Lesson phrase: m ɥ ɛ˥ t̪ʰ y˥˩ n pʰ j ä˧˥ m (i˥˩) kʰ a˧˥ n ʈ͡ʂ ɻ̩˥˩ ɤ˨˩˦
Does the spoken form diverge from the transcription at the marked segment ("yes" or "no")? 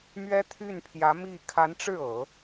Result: no